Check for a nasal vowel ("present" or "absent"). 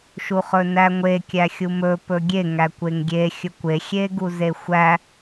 absent